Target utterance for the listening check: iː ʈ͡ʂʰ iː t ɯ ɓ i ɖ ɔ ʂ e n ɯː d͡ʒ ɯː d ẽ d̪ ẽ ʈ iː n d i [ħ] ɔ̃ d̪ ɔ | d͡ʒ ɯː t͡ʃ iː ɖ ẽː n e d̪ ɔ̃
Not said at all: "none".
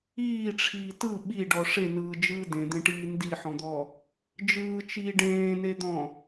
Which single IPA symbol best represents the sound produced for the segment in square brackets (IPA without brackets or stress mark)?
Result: ħ